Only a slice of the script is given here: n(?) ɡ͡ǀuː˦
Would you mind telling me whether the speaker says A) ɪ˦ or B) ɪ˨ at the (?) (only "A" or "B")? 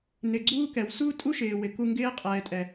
B